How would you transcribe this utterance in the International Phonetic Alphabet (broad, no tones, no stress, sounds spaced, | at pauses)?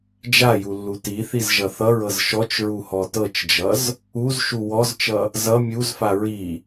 d͡ʒ a j u lː u t i θ i z ʒ ʌ θ ʌ ɹ ɤ z ʃ ɔ t͡ʃ ɹ u h ɔ t ɤ t͡ʃ d͡ʒ ʌ z | u z ʃ u w ɔ z t͡ʃ ʌ | z ʌ mʲ u z f a ɹ i